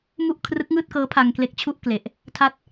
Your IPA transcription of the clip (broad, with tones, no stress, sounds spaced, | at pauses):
m u˥˩ ʔ kʰ r ɯ˦˥ k̚ ŋ ɯː˥˩ t̚ k ɤː˦˥ pʰ a˧ ŋ k l e˦˥ k̚ t͡ɕʰ u˥˩ ʔ k l e˨˩ ʔ | tʰ a˦˥ t̚